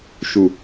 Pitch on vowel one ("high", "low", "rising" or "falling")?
low